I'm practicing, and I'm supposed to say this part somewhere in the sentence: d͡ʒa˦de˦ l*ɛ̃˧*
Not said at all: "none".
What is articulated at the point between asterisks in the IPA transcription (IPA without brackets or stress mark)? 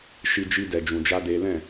ɛ̃˦˨